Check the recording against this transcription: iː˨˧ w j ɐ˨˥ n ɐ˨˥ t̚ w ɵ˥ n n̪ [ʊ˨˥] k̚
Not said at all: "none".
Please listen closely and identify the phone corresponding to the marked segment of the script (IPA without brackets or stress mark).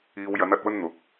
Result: ʊ˨˥